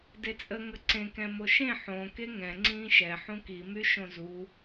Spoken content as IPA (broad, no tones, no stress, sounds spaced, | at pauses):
d e t͡sʼ ə ŋ ə ǀ ẽ k ɛ̃ m o ʃ ẽ ħ õ k e ŋ ɛ̃ ŋ͡ǀ ĩː ʃ ɛ ħ ũ k i m y ʃ õ z u